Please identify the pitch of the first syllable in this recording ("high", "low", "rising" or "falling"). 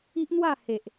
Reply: high